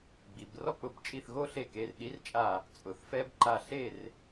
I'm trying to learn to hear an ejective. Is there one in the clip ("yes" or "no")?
yes